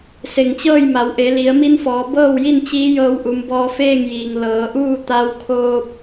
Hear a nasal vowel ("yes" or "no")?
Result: no